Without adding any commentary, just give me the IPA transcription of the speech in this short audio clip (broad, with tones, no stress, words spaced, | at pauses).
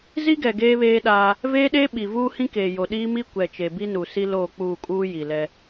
zi˦ɡɛ˨ ɡeː˦βeː˦ɗaː˦ | veː˦ɗeː˦ ɓi˨vuː˦hĩ˦keː˨ jo˨ɗiː˦mi˦ kʷɛ˨t͡ʃe˨bi˦nu˨ si˦ loː˦˨k͡puː˦˨kʼuː˦ ji˨lɛ˦